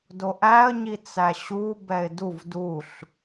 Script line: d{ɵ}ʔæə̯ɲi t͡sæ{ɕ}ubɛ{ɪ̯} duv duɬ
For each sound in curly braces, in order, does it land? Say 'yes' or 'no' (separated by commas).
no, yes, yes